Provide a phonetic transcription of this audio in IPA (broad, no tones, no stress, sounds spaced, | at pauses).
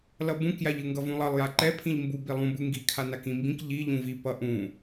l ʌ b ũ k j a ʎ ɯ ŋ ɡ ʌ v ũ lˠ ʌ lˠ j a ǃ ɛ pʰ ĩ ʎ m b u b i lˠ ũ b ɯ ŋ ɡ i kʰ a n a k ĩ m b ĩ k ʎ i ʎ ũ v i p ʌ ʔ ũ